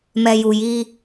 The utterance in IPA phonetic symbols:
m ɛ˨ j u˨ j i˦

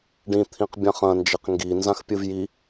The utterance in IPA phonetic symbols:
ɖ ĩ t̪ʰ ĩ q bʲ ã χ ɐ̃ n d͡ʒ e q ŋ ɡ i n z ã x pʲ ɨ v j i

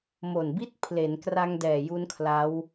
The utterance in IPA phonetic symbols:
m o˨˩ n b i˥˩ t̚ pʰ l e˩˦ n k r a˧ ŋ d ɛː˨˩ j u˦˥ n kʰ l a˦˥ w

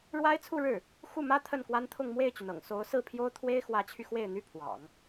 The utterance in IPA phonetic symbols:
ɻ w a˥ ɪ̯ t͡sʰ u˥˧ ɻ ɻ̩˥˩ | x u˥˩ m ä˥ t̪ʰ ə˥˩ n k w a˥ n t̪ʰ ʊ˥˧ ŋ m w e˥˩ ɪ̯ t͡ɕ y˩ n ɤ̰˨˩ ŋ s o˧˥ ʊ̯ s ɹ̩˥˩ pʰ j o˥ ʊ̯ t̪ʰ w e˥ ɪ̯ x w ä˧˥ t͡ɕʰ y˧ x w e˥˩ ɪ̯ n̪ y˥ pʰ w ɑ̰˨˩˦ ŋ

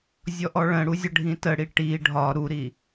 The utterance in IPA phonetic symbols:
zʲ ɔ ʔ ɔ ɭ ə̃ ɽ u zʲ ə ɖʱ ĩ t ə ɽ i ʈ i ɖʱ ɒ ɾ u ɾ i

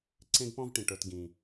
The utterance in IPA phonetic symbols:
ǀ ẽ˧ ɡ p ɔ̃˧ v ʈ ĩ˩ ʈ ə˞˩ t ɡ ĩ˩

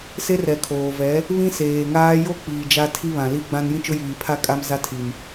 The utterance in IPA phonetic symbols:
s e˦ r ɛ˨ kʰ oː˨ v ɛ˨˦ | β ĩ˦ s eː˨ ŋ aː˦ j o˦ k͡p iː˨ d͡ʒ a˦ tʰ i˦ β ã˨ l i˦ ɡ͡b ã˦ n j ĩ˦ t͡ʃ ʊ˦ j iː˨ pʰ a˦ kʼ a˦ m z a˦ tʰ i˨ m

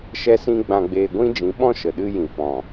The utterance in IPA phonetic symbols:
ʃ ɛ˦ s ĩ˦ ɡ͡b ã˧ ɡ͡b eː˧ ɡʷ ĩ˦ d͡ʒ ĩ˨˦ ɓ ɔ̃˦ ʃ ə˨ ɗ ɨ˦ j ĩ˨ f ɔ̃˨

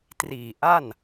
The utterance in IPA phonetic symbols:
t r iː˨˩ ʔ a˥˩ n

